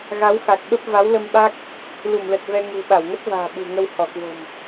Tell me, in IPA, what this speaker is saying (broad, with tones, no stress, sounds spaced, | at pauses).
ɣ a˨˦ w x a˨˩ k̚ ɓ ə˦˥ p̚ v a˨˦ w l ə˧ m ɓ a˦˥ k̚ | l u˧˩ m l ə˨˩ t̚ v ɛ˧ ŋ ṳ˨˩ ɓ a˧˩ w ŋ ə˦˥ t̚ v a̤ː˨˩ ɓ ṳ˨˩ ŋ ə˧ w h ɔ˧˩ k w o̤˨˩ m